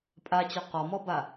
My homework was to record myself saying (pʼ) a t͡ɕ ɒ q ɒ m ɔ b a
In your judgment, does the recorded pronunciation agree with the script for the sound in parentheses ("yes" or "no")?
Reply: yes